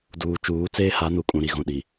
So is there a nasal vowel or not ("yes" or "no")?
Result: yes